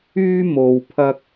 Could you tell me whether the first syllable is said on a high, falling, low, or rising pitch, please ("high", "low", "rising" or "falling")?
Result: high